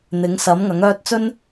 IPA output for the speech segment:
n̪ ɪ˨˥ ŋ s ɐ˨˥ m ŋ ɐ˨˥ ŋ œː˥ t̚ t͡s ɵ˥ n

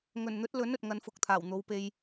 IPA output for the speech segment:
ŋ ɵ˨˩ n n̪ ɵ˨˥ t̚ l ɵ˨˥ n ɵ˨ t̚ ŋ ɐ˨˥ n f ʊ˨ k̚ t̪ʰ aː˨˩ w n̪ o˨˥ w p e˧ j

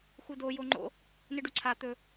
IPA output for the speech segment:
x u d o j o ŋ͡ǃ o̰ | n ɨ ɖ u ǀʰ a t̪ ɵ

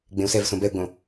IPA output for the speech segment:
ɡ͡b ẽ u̯ s ɛ v s õ b ɛ u̯ ɡ͡b õ

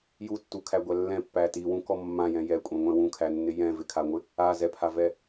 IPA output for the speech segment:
j u tː u kʰ æ ɡʷ æ lː ɛ̃ pː æ t i w ũ k ɔ mː ã j ɛ̃ j ɛ kʷʼ ɛ̃ ŋʷ ɛ̃ w ũ kʰ æ nː ɪ j ɛ̃ v ɪ kʰ a ŋʷ ɪ | a z ɛ pʰ a v ɛ

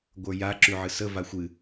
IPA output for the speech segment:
ɡʷ ə˞ j a ǁ y ʕ ɨ s ə v a xʷ ɨ

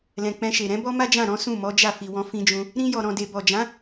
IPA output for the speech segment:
l ɛ̃˨ k͡p ɛ̃˧ ʃ e˨ ɾ ɛ̃˨˦ b ɔ˦ m a˦ d͡ʒ ã˦˨ ɾ ɔ̃˨˦ s ũ˦˨ m ɔ˨˦ d͡ʒ a˦˨ f i˨ w ɔ̃˧ f ĩ˧ d͡ʒ ũ˧ | ɾ ĩ˧ j ɔ˨ ɾ ɔ̃˨ d e˨ b ɔ˨ d͡ʒ ã˨˦

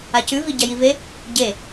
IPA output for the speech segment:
a c ʉ v i ɟ ɐ j i v e | ɟ e

